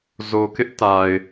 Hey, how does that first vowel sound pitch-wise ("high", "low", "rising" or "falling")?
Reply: low